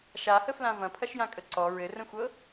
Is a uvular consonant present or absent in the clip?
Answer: absent